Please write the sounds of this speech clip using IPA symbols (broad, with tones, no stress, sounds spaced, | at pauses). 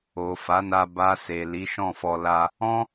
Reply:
o˨ f a˨˦ n a˧ b a˧ s e˨ l i˨˦ ʃ ɔ̃˦˨ f ɔ˧ l a˧ | ɔ̃˦